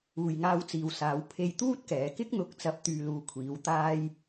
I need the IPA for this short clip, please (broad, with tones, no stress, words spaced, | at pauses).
uː˨jŋaː˧wt͡siː˨wsaː˨˧w pʰe˧jt̪uː˥t̚kɛː˨˧kɪ˥k̚ n̪ʊ˨˥k̚t͡sɐ˨˥p̚ t̪yː˧luː˧kʷʰiː˨˧w t̪aː˧j